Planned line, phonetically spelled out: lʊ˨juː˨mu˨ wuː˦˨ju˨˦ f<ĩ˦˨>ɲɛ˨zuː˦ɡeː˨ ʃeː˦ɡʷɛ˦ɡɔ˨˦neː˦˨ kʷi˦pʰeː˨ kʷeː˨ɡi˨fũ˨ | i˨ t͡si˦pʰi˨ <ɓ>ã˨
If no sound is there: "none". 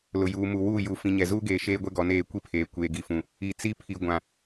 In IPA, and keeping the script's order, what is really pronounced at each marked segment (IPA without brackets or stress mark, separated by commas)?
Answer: ĩ˨, ɡʷ